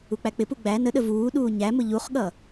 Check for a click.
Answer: absent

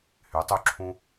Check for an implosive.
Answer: absent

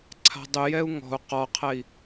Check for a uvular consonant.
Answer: present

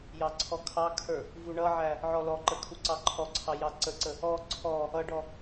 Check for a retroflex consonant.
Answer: present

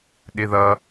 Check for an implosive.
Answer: present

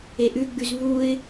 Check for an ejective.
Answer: absent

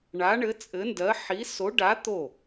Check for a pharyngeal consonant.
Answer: present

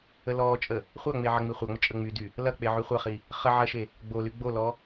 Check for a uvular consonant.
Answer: present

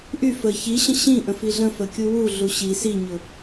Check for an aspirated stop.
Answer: absent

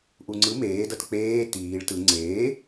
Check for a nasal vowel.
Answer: absent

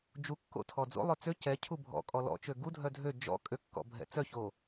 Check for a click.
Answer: absent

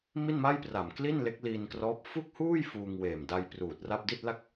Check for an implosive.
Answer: absent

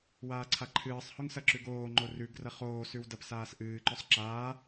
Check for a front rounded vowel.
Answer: absent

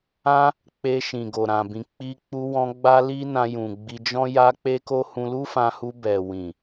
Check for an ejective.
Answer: absent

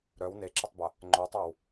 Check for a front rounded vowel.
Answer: present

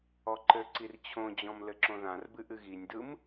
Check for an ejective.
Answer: absent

